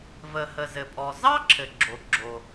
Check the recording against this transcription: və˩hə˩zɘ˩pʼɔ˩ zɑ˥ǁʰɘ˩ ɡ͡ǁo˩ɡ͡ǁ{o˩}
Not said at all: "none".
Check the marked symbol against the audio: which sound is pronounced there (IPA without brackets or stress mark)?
o˩